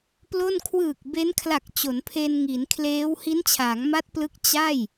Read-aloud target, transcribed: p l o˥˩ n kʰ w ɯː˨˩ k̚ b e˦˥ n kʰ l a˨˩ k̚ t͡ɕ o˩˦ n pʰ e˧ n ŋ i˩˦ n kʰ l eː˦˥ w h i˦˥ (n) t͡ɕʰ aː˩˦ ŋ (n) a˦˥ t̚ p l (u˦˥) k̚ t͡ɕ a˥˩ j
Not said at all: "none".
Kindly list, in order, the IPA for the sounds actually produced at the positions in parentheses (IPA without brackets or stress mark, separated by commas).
n, m, ɯ˦˥